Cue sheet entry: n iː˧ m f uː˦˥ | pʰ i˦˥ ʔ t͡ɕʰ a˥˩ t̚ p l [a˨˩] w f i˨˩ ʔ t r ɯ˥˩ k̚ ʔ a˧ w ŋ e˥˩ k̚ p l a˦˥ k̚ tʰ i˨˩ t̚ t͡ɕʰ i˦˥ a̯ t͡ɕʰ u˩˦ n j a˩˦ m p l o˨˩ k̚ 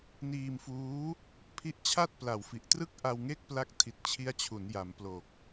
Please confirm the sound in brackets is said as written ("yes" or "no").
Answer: yes